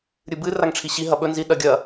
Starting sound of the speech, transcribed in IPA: ɾʲ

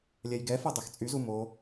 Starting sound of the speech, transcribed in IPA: lʲ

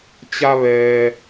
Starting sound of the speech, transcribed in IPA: t͡ɕ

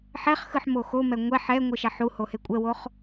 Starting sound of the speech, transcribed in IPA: ħ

